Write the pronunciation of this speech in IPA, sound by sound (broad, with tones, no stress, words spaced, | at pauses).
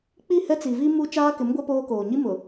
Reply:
k͡pi˦˨hɛ˦t͡si˨vi˦ mu˦ t͡ʃaː˦kɪ˨˦mɡʷa˦ poː˦koː˨ ɲi˦mʊ˨